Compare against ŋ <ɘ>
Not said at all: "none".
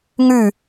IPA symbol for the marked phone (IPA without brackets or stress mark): ʉ